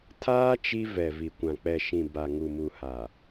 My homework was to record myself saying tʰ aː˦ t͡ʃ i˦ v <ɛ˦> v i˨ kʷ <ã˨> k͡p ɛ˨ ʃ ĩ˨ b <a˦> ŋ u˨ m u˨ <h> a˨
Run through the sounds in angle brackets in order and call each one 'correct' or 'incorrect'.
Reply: incorrect: ɛ˨, correct, incorrect: a˨, correct

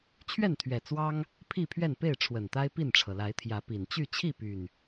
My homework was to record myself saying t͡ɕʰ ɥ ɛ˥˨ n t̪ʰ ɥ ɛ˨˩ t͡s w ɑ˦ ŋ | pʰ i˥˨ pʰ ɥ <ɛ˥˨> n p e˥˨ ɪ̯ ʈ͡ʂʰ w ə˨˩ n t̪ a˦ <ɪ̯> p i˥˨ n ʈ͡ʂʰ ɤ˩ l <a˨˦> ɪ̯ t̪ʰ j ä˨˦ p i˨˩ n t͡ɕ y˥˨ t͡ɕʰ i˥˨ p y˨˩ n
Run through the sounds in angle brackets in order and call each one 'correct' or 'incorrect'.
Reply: correct, correct, correct

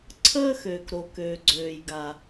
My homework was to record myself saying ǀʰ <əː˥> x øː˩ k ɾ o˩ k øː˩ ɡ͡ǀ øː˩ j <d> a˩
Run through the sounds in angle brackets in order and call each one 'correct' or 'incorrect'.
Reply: correct, incorrect: ɡ

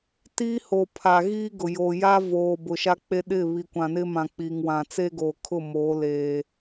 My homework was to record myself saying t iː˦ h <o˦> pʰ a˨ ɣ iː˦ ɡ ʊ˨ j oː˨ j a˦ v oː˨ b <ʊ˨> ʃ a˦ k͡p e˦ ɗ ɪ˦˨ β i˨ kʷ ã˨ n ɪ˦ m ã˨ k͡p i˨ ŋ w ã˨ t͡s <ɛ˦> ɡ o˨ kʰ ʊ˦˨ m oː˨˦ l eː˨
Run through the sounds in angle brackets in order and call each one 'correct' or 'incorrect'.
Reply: incorrect: o˨, correct, incorrect: e˦

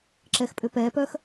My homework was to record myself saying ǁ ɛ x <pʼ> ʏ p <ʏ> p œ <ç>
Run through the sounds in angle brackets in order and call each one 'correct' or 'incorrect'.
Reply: correct, incorrect: ɛ, incorrect: x

